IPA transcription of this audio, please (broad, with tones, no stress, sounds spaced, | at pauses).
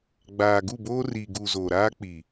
ɡ͡b aː˨ ɡ u˦˨ b oː˦ r i˨ ɡ u˨ z o˨ ɾ aː˦ k͡p i˨